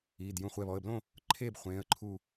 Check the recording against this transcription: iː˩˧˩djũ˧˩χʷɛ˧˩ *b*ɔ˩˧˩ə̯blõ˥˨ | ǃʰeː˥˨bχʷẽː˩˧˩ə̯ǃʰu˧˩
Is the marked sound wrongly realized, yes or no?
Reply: yes